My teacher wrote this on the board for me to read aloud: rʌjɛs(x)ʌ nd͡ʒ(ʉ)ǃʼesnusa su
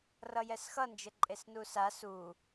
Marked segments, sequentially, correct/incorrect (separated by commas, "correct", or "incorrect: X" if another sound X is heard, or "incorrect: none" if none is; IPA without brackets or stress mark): correct, incorrect: ɘ